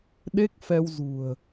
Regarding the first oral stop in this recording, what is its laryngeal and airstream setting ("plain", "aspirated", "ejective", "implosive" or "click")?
implosive